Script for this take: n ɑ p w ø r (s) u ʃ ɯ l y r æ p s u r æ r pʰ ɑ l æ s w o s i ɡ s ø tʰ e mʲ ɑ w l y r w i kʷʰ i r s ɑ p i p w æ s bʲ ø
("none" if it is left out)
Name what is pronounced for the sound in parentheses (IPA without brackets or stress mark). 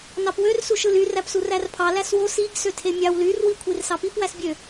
s